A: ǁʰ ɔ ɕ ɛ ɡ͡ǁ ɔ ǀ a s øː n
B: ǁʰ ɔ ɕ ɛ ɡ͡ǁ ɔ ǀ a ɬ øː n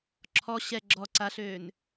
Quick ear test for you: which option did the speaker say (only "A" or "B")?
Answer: B